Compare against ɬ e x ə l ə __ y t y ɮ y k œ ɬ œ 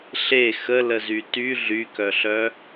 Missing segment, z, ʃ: z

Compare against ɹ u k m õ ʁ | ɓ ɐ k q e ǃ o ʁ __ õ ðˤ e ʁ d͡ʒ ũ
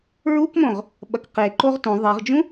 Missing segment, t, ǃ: t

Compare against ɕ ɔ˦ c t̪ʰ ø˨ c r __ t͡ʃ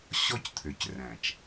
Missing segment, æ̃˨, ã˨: æ̃˨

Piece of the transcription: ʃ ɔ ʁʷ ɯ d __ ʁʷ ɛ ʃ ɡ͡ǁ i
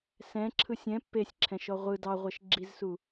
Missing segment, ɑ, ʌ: ɑ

